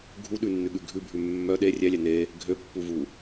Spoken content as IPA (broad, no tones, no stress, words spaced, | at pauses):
ɡʱuɗʉnːʉɠʉ ɡʱʉbʱʉ mːœ ɗe rʲælʲæ ne | ɡʱøpːuvu